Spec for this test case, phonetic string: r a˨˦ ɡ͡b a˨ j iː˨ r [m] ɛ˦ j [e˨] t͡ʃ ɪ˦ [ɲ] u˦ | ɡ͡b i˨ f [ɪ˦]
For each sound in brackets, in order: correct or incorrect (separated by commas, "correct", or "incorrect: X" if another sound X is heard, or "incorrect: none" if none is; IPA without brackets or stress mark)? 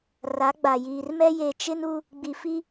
correct, correct, incorrect: n, incorrect: i˦